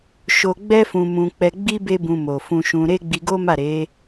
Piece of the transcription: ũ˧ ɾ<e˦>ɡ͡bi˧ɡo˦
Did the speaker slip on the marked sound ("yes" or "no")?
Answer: no